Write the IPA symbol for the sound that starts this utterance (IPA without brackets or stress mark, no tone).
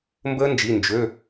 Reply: m